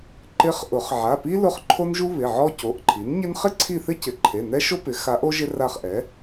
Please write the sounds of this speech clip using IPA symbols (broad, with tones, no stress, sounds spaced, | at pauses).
ǃ ɪ˧˥ χ ʔ ʊ˨˩˦ χ ʕ a˩˧˩ p i˥ l ʊ˦˨ χ ǃʰ o˥ n ʒ u˥ β ɪ˩˧˩ ʕ ɔ˥ c o˩˧˩ ʔ ǃʰ i˩˥ n ɲ ɪ˥ n χ ɪ˥ ǀʰ i˦˨ θ ɪ˥ c ɪ˩˧˩ ǃʰ e˩˧˩ n ɛ˥ ʃ o˥ p ɪ˩˥ x a˧˥ ʔ o˥ ʒ ɪ˥ r a˦˨ χ ʔ ɛ˩˥